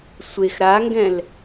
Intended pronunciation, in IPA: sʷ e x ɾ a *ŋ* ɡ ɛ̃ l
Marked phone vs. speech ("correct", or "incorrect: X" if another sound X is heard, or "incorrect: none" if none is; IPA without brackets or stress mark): correct